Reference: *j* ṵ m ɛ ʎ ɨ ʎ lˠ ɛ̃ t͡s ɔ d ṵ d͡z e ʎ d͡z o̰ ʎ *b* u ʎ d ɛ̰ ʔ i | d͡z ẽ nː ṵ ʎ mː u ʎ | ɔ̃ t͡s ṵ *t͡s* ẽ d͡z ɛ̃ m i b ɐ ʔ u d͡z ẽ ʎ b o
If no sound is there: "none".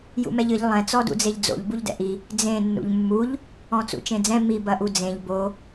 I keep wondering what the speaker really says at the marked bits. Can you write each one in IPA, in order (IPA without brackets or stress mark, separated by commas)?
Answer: j, b, t͡ʃ